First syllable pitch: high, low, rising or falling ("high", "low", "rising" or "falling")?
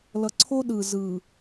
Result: low